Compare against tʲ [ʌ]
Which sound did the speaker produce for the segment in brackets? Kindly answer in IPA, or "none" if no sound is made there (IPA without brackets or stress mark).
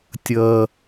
ʌ